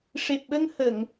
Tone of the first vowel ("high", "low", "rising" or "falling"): low